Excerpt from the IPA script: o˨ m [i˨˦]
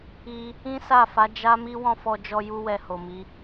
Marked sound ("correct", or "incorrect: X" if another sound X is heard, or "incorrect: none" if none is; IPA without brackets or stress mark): correct